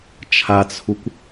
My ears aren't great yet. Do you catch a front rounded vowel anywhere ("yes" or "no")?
no